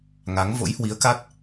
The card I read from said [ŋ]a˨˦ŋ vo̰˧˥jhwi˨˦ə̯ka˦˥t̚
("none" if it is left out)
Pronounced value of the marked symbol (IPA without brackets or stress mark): ŋ